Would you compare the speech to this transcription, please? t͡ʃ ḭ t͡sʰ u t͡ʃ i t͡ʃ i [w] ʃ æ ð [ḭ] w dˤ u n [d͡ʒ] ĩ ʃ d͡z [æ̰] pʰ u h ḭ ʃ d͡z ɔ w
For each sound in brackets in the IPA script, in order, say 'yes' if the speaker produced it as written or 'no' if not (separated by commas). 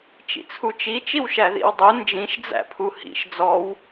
yes, yes, yes, yes